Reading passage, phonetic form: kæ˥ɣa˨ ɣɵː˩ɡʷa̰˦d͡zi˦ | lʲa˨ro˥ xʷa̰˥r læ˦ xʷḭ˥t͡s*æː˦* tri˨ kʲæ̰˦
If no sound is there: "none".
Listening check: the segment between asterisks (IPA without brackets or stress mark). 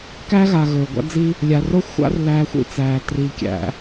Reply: æː˨